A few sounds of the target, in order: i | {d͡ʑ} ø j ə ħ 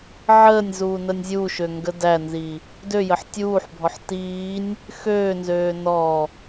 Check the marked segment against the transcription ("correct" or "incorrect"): incorrect